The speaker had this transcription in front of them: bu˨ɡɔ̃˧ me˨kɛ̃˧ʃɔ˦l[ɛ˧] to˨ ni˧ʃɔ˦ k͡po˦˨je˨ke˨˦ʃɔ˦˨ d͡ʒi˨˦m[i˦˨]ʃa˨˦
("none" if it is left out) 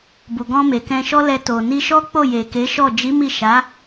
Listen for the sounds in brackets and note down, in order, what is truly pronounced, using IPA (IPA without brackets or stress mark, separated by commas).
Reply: ɛ˧, i˦˨